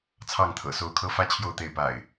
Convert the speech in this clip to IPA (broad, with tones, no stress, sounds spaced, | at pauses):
t͡sʰ ɑ˥˨ ŋ t̪ʰ ɤ̰˨˩ s o˥˨ ʊ̯ kʰ ɤ˦ f ä˦ t͡ɕʰ j o˥˨ ʊ̯ t̪ e˥˨ ɪ̯ p a̰˨˩ ɪ̯